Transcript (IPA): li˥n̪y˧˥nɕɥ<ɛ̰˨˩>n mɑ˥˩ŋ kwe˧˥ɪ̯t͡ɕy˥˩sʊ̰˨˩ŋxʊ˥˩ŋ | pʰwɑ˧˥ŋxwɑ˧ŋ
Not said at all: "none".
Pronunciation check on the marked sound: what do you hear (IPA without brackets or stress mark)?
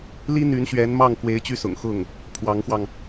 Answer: ɛ˧˥